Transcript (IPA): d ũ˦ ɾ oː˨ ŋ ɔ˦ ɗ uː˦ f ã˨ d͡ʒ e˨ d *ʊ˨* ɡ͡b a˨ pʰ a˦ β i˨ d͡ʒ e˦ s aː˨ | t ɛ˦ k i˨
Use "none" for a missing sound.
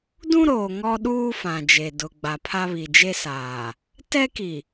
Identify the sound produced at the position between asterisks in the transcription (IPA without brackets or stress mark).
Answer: ʊ˨